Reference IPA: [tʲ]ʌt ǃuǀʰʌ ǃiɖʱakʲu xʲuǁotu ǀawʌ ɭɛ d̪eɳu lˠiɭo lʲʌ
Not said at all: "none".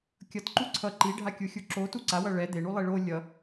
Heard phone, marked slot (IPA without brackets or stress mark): kʲ